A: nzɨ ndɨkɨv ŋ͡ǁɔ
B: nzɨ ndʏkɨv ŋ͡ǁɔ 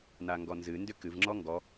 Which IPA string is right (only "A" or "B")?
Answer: B